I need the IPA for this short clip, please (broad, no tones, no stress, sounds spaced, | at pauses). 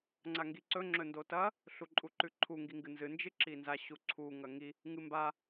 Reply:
ŋ͡ǀ a ŋ ɡ i ǀ ɵ ŋ͡ǁ ɵ n d o t ɐ | ɬ u ǃʼ u ǃ ʉ ǃʰ u ŋ ɡ i ŋ ɡ ɨ n z ɨ n d͡ʒ ɨ ǁ i n z a ɕ u ǀʰ u ŋ ɐ ŋ i | ŋ ɨ m b a